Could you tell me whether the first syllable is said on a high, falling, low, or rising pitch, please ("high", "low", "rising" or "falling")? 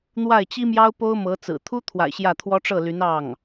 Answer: falling